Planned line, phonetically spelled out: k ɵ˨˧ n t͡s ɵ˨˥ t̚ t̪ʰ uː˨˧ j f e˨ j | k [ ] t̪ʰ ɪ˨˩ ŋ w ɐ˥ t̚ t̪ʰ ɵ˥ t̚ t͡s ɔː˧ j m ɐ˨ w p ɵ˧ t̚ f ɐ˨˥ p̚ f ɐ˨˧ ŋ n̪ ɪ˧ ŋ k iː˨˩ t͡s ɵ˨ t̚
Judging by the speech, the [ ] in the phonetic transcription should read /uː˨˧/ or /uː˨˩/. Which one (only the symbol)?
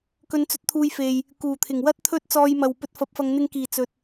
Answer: uː˨˩